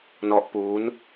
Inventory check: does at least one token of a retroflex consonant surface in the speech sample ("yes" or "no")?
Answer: no